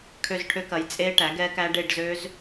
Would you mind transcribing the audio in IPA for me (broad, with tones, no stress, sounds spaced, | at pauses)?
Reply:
kʰ ø˦˨ z ʈʰ ø˦˥ k ɐ˩˥ j t͡sʼ e˦˥ ʈ æ˩˥ ɡ ɛ˦˥ k æ˦˥ ɖ e˦˨ ɖ z ø˦˥ z